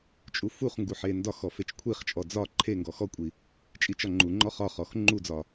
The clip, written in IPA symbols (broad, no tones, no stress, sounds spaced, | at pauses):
t͡ʃʼ u f u χ ŋ ɡ u ħ e n d ɒ x ɔ f e t͡ʃ kʷʰ i χ t͡ʃʼ ɔ d͡z ɒ ǃʰ e ŋ ɡ ɔ x ɔ kʷʼ i | t͡ʃʼ i t͡ʃ ɒ ŋ͡ǃ u ŋ͡ǃ ɔ χ ɒ χ ɔ x ŋ͡ǃ u d͡z ɒ